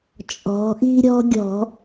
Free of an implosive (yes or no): yes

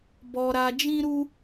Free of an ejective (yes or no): yes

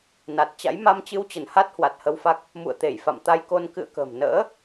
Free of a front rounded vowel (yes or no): yes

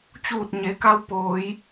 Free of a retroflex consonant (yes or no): yes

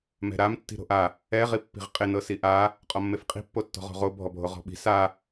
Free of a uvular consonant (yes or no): no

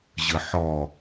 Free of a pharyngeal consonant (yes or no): no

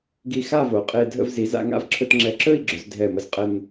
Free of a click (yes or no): no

